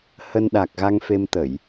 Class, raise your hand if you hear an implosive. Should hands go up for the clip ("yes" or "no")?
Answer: yes